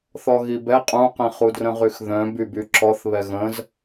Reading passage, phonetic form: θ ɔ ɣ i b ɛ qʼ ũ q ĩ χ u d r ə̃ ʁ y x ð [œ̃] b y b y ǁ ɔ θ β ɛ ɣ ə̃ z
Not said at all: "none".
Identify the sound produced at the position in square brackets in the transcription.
œ̃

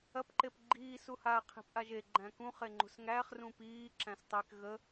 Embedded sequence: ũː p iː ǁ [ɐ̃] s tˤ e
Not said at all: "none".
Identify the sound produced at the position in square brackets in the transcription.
æ̃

